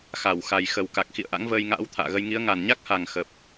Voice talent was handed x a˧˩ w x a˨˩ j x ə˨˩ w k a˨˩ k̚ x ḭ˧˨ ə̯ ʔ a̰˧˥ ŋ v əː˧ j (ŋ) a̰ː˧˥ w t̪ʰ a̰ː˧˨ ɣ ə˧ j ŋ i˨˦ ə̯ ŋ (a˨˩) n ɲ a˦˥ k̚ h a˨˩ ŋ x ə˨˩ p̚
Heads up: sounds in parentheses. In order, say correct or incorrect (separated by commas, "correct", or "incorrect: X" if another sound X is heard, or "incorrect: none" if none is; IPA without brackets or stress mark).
correct, correct